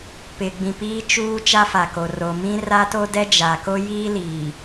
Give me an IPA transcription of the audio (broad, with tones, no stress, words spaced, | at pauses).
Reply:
pɪ˨ɡ͡bĩ˨ piː˦t͡ʃuː˦ t͡ʃa˦fa˨ko˨ ro˨mĩ˦ ra˦to˦dɛ˦ d͡ʒa˨ko˦ jiː˦liː˨